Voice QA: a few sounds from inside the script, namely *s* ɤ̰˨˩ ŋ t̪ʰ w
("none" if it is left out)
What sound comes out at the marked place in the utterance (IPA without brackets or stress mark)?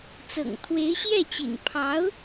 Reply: t͡s